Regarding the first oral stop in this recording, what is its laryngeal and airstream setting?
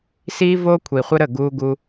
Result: aspirated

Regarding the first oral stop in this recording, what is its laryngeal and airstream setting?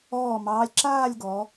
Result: click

